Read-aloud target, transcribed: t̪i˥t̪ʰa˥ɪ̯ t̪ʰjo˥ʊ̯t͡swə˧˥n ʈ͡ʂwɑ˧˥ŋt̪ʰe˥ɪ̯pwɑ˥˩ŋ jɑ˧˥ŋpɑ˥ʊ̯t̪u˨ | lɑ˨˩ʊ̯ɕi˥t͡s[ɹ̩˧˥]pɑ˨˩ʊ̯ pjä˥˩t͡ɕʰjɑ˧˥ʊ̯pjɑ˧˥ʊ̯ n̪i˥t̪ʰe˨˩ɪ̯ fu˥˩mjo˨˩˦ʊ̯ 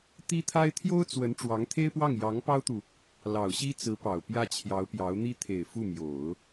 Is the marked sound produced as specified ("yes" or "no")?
yes